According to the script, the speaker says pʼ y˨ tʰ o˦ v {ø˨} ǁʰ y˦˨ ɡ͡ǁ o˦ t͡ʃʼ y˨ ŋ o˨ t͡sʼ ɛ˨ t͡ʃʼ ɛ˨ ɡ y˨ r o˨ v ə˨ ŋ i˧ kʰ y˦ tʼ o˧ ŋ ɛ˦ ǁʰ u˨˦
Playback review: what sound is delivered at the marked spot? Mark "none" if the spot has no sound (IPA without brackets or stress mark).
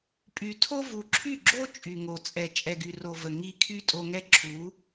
u˨